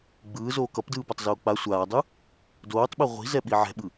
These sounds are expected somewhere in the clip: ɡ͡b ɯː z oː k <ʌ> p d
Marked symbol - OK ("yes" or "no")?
yes